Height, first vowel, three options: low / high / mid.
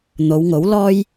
mid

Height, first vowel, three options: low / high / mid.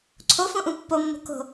mid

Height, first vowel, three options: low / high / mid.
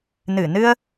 high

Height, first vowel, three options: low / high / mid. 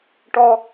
mid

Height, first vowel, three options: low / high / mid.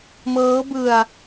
mid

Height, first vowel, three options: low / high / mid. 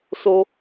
mid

